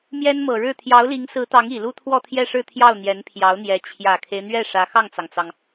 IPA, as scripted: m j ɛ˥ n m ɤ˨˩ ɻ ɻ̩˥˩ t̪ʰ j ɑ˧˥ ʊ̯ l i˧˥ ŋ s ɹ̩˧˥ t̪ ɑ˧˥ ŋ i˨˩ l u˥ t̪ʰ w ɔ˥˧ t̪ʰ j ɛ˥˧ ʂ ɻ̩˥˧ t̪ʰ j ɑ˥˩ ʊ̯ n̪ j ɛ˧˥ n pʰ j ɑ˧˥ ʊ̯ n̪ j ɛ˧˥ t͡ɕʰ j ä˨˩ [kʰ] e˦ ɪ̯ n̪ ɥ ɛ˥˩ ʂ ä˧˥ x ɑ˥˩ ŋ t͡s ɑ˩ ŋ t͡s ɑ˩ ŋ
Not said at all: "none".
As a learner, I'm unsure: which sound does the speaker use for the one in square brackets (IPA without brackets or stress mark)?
kʰ